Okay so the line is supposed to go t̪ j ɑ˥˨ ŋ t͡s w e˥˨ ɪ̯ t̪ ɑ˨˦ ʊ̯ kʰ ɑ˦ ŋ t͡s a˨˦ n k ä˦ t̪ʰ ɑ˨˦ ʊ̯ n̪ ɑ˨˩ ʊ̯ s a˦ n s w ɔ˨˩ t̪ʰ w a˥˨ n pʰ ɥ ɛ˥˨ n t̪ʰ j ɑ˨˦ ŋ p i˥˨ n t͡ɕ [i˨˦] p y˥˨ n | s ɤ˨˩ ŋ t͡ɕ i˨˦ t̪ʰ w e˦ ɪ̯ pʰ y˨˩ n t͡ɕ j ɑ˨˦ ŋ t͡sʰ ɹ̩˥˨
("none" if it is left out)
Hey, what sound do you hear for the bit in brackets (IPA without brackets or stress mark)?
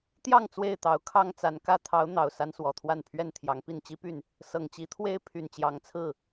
i˦